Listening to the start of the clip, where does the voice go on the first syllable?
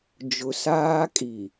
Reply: low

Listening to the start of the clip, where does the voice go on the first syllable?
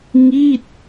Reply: falling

